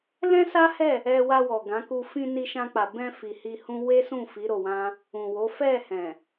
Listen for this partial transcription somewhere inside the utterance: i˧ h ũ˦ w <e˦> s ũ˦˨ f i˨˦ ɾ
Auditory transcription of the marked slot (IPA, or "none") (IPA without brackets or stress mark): e˦